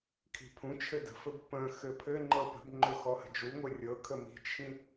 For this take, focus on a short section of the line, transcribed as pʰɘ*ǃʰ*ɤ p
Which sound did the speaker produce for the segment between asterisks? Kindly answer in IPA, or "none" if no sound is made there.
ŋ͡ǃ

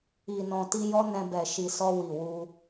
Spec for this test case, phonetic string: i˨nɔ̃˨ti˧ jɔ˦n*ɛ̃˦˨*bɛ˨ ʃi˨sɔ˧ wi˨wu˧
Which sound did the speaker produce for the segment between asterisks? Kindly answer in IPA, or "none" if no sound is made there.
ɛ̃˧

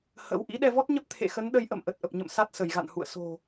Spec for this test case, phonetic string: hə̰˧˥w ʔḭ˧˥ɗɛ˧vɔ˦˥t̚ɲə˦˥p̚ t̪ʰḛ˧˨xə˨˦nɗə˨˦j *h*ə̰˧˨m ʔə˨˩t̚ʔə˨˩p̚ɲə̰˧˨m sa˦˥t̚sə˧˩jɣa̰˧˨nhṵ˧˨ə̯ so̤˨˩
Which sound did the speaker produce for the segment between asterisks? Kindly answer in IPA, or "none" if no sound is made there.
ʔ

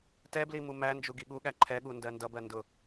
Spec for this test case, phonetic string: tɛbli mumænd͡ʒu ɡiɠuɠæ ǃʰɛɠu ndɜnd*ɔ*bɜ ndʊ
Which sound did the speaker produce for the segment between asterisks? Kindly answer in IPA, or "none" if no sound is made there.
ʌ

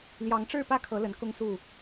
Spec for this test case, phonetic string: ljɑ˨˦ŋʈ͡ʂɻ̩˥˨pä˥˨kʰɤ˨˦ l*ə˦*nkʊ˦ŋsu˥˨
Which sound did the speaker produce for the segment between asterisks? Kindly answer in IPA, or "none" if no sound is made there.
ə˨˦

